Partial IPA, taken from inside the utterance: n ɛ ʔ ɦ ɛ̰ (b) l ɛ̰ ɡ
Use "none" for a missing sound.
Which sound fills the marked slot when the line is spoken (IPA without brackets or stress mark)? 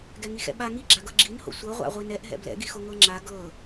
b